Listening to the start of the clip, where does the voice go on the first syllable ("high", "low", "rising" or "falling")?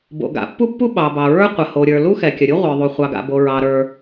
low